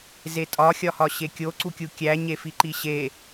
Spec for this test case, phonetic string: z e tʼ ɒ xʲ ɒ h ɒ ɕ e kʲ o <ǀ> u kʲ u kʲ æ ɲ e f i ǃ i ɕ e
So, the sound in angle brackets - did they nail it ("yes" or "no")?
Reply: yes